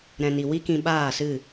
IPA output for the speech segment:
ɾɛ̃˨ni˨ wi˦kĩ˧ ɓaː˦˨sɨ˦˨

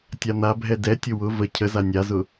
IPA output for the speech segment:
tʲan̪abʱɛ dɛtʲʊ wʊ və cʰəza nʲazʊ

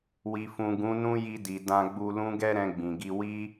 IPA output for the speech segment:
wi˨fũ˨ ɡũ˨˦nũ˦ji˧di˨ dã˧ɡ͡bu˧lũ˦ ɡɛ˦ɾɛ̃˧ɡ͡bĩ˨ɡi˧ wi˦

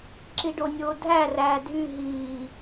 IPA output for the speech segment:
ǁiɖonʲoːdʱæ ræːdʱy ɦiː

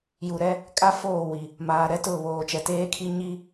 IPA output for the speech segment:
ju˨ɾɛ˦ | kʼa˦foː˦˨wi˨ | maː˨ ɾɛ˦tʊ˦˨βoː˨ t͡ʃɛ˨teː˦kʰi˦ ɲi˦

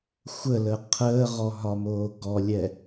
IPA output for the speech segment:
xʷələ qʰəːʁɔɦɒmoː ɡɔlʲɛ

